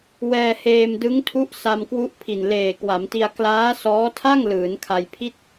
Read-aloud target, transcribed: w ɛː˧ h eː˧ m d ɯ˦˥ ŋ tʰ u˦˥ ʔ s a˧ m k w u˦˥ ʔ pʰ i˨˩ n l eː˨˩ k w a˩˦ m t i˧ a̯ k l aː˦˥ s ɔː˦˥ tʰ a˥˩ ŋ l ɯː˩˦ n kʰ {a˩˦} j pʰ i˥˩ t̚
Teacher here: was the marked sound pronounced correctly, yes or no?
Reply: no